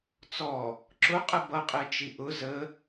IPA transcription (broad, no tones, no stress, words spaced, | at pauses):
t͡sɔ | ǁʊqʼə bʌqʼɛt͡ʃi ʔʊ zə